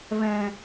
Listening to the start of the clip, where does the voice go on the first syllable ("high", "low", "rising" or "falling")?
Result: low